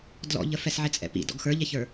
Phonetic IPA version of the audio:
d l ɔ̰ ʎ ə f ɛ s ʕ ɪ t͡sʼ ɛ̰ p ḭ d ɔ̰ ɡ x ə˞ ʎ ɛ ç ə˞

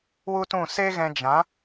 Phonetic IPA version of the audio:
w u˦ t ũ˦˨ s e˦ ɣ ɛ̃˧ d͡ʒ ã˨˦

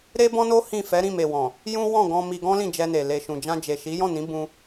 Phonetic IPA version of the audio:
ɾ e˦ b ɔ̃˦ n o˦ h ĩ˦˨ f ɛ˨˦ ɾ ĩ˦˨ m e˨ w ɔ̃˨ | j ũ˦ w ɔ̃˦˨ ɡ ɔ̃˧ m i˧ ɡ ɔ̃˦ l ĩ˦˨ d͡ʒ ɛ˧ n e˨ l e˨ ʃ ũ˨ d͡ʒ ã˧ d͡ʒ e˨ ʃ i˨˦ j ɔ̃˦˨ n ĩ˨˦ b ũ˦

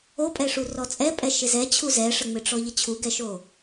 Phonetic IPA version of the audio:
o pʼ ɛ ʂ u r ɔ t͡sʼ ɛ pʼ ɛ ʃ ɪ z ɛ t͡ɕʰ u z ɛ ʂ ə ŋ͡m ɪ ʈ͡ʂ ɔ ʎ ə t͡ɕʰ u ɡ ɛ ʃ o

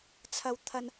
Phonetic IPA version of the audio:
t͡sʰ ɐ˥ w t̪ʰ ɐ˥ n

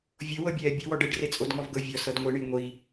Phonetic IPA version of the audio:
vʲ o w ɤ bʲ ɛː bʲ u w ɔ ɖ e ɖ r e t͡sʼ o d ŋ ɔ v ɡ ɤ vʲ ɔ s ɤ d ŋʷ i ɳ i ŋʷ i

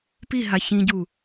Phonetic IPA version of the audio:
p i ɦ a ç ĩ ɟ u

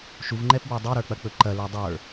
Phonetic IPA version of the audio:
ʃ u v ŋ͡ǃ ɛ p b ə˞ dˤ u ɾ ə˞ k͡p ɐ k͡p ɵ ǃ ɐ l ə˞ dˤ ə˞

